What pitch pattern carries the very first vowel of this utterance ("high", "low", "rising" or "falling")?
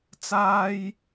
high